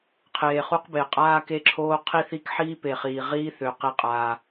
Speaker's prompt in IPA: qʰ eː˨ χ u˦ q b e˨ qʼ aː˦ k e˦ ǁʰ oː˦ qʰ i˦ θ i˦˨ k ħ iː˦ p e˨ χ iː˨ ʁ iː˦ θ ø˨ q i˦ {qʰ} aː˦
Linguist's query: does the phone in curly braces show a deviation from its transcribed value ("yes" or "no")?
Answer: yes